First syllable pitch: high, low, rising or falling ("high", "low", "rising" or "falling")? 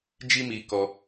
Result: high